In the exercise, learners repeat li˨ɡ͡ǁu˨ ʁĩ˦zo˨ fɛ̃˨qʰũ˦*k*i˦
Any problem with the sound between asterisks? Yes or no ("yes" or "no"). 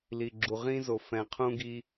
yes